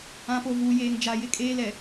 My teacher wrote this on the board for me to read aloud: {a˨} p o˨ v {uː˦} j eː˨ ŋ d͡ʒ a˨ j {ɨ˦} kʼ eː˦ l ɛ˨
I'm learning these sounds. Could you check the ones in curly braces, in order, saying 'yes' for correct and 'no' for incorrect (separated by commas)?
no, no, no